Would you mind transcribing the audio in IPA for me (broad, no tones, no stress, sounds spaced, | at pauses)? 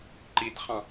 ǃ i t χ ɑ̃